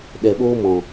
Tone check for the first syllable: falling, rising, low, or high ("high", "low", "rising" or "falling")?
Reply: low